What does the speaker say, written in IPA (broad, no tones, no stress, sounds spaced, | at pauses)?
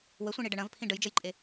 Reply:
w ə sʷ ĩ ɳ i ɖ ə ɳ ɐ̃ v pʰ ĩ ɖ ə j d͡ʒ ə j ǃʼ e